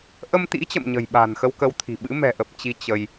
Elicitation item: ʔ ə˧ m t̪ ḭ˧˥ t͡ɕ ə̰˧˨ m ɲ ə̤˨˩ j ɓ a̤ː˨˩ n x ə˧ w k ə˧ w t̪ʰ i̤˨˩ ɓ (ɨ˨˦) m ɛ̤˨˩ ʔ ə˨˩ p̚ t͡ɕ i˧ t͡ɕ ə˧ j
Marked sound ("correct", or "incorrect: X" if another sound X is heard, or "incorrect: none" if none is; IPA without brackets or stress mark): incorrect: ɨ̰˧˥